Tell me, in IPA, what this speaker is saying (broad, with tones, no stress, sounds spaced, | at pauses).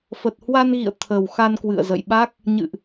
f ə˨˩ t̚ h w a˧ n ɣ ḭ˧˨ ə̯ t̪ʰ ə˨˩ w x a˧ n k w ɨ̰˧˨ ə̯ z ə̰˧˨ j ɓ a˦˥ k̚ | ɲ ɨ̰˧˨ ʔ